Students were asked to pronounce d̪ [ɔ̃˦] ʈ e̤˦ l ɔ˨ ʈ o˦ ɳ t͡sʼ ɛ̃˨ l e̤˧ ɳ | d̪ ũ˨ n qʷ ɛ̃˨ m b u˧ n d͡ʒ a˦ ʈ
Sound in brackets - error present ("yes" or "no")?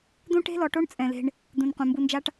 yes